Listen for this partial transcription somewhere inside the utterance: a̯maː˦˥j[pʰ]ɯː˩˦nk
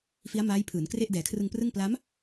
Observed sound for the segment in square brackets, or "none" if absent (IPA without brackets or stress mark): pʰ